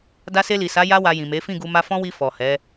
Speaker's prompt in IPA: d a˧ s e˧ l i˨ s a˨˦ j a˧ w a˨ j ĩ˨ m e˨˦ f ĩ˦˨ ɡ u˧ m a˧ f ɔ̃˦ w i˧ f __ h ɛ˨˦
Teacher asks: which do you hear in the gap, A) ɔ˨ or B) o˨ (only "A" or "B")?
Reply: A